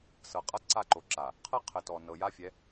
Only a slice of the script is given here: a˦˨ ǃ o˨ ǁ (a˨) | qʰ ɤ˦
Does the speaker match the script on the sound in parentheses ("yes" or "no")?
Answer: yes